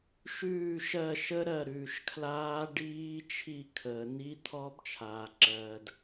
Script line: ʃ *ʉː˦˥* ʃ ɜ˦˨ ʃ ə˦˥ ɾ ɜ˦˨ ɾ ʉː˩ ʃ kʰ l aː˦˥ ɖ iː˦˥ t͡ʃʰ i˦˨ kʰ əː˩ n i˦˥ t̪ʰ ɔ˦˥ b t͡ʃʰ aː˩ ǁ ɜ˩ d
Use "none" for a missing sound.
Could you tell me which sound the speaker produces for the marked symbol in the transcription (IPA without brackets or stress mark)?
ʉː˦˨